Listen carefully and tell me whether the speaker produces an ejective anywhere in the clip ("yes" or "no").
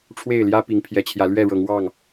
no